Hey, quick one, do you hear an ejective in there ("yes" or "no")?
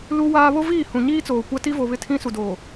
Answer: no